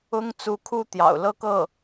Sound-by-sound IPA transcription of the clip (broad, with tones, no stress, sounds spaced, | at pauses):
ʊ˥ ŋ t͡s u˧˥ kʰ u˥ t̪ j ɑ̰˨˩ ʊ̯ l ɤ˥˧ k ɤ˥˩